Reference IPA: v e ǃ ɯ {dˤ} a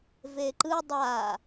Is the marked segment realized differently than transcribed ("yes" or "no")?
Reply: no